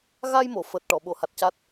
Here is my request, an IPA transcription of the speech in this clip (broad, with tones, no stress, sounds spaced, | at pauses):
ɣ a˧ j m o˨˩˨ f əː˨˩ t̚ ʈ ɔ˨˩˨ ɓ o˨˩˨ h a˨˩ t̚ c a˦˥ t̚